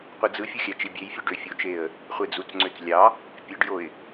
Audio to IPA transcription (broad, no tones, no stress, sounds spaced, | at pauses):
qʷ ɯ d͡z ɯ fʲ u xʲ æ t͡ʃ i bʲ e j fʲ ø ɖ ø fʲ o t͡ʃ e ə̯ | χʷ e d͡z u t͡s ŋ͡ǀ ø t͡s lʲ ɑ | pʲ e ɖ j o ɪ̯